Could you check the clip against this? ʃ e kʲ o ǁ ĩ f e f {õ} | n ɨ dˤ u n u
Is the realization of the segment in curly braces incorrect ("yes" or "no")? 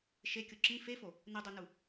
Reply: yes